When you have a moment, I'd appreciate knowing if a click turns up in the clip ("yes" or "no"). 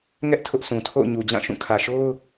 no